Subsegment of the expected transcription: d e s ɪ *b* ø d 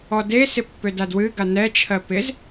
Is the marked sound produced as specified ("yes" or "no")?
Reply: no